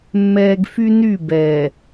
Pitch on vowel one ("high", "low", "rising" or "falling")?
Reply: low